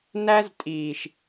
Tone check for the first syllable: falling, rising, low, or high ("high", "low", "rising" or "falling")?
high